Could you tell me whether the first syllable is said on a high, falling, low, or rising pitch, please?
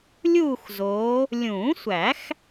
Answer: falling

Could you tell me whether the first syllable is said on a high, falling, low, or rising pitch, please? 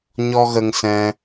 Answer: high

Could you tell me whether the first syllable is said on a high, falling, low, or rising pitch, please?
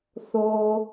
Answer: low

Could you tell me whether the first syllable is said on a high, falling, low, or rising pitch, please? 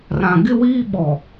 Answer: low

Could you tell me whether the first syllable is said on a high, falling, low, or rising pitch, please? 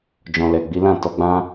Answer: low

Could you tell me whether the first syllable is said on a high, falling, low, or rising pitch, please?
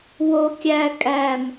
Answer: high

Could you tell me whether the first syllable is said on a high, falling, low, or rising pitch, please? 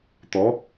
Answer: rising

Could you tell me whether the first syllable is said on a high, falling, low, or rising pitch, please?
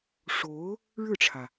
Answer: rising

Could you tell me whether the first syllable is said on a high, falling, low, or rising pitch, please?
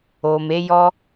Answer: low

